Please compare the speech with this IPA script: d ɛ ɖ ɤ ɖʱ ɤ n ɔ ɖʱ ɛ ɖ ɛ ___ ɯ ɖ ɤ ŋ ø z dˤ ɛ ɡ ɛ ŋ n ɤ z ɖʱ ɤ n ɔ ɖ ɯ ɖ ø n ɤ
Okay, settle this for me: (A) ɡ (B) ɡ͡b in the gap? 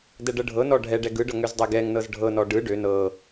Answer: A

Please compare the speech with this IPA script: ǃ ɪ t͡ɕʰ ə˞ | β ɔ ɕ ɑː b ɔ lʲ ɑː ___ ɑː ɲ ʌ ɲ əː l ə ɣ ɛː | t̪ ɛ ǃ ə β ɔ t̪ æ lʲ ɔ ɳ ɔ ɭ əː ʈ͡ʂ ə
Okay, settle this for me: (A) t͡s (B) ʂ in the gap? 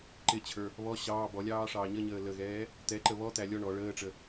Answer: B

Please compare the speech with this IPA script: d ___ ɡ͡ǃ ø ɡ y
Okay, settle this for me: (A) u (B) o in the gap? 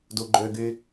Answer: A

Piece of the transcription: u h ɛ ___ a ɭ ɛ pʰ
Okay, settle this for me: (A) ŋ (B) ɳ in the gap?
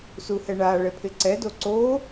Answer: B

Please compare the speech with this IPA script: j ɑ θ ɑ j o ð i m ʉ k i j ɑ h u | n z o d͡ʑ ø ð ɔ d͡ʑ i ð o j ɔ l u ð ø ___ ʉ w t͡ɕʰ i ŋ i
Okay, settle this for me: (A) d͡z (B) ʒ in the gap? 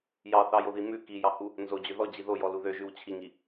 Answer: B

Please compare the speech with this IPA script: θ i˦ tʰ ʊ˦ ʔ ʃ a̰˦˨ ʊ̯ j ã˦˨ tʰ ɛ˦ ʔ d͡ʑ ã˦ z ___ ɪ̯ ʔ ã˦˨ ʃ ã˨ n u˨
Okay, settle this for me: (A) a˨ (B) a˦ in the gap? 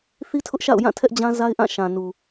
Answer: B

